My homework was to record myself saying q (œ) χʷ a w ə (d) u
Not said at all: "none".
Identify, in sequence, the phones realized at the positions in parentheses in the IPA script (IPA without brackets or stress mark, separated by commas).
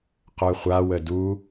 œ, d